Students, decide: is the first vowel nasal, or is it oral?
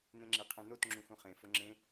nasal